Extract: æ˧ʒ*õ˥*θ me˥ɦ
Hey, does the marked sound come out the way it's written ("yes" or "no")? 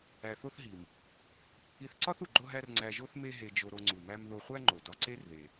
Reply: no